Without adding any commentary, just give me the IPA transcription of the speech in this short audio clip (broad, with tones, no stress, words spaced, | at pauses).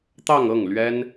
t̪ɑ˥˧ŋɤ˥˩ŋlɥɛ˥n